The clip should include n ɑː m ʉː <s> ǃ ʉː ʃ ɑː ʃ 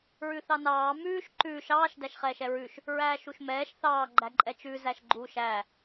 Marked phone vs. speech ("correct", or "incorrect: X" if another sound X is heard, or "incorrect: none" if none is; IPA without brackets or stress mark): incorrect: ʃ